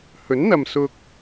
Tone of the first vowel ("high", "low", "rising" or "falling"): rising